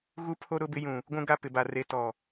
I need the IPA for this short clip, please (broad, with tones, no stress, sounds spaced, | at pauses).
ɣ u˦ pʰ o˦ ɾ ʊ˨˦ b ɪ˨˦ j ũ˨ | ɡʷ ũ˦ ɡ a˦ p ɪ˨ b a˨ r e˨˦ t ɔ˨